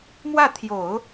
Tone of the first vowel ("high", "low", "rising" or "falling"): falling